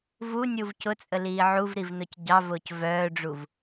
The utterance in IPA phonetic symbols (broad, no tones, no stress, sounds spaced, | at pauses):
v u nʲ u v c ʊ t͡sʼ ə l iː ʕ u v ɾ i v n ʊ c ɟ ɑ v ʊː c v œː ɖ͡ʐ u v